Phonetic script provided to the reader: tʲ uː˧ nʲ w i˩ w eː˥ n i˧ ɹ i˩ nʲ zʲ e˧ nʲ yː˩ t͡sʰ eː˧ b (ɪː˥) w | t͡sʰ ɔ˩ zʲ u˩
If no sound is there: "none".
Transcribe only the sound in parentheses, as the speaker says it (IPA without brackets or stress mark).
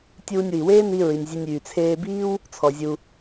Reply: iː˥